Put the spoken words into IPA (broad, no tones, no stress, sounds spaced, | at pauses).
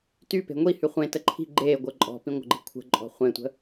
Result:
t y p e̤ ŋʷ i h y χʷ ẽ t ə ǃʰ i̤ ɡ͡ǃ eː ɡʷ əː ǃʼ ɔ̤ p ĩ ŋʷ ə̤ ɡ͡ǃ i̤ kʷʰ ə̤ ǃʼ ɔ̤ χʷ ẽ tʷ ə̤